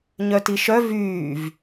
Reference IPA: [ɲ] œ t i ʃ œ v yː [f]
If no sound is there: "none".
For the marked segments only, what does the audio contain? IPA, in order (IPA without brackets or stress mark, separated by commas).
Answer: ɲ, v